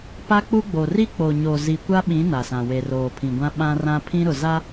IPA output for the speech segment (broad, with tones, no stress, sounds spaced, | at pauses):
p a˦ k͡p u˦ ɡ͡b o˨ r i˦ k͡p o˨ ɲ o˨ z i˨ kʷ a˦ ɓ ĩ˨˦ n a˨ s ã˨ w e˨ r oː˨ pʰ ĩ˨ ɡʷ ã˦ ɓ ã˦ r ã˦ pʰ ĩ˦ ɾ ʊ˨ z a˦